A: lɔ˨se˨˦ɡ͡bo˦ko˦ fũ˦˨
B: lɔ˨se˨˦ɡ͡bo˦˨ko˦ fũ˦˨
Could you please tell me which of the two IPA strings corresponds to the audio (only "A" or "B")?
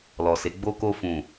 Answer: A